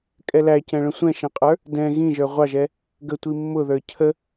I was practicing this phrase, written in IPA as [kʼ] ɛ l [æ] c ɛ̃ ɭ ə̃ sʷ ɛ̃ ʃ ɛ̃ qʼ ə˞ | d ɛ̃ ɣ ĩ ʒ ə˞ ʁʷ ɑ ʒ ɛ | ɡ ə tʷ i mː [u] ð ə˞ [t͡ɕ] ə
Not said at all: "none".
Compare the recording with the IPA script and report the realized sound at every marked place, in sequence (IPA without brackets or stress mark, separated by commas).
kʼ, æ, ʊ, cʰ